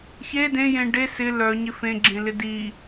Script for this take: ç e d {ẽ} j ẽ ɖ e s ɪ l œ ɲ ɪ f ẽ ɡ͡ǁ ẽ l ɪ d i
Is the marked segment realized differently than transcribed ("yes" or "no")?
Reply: no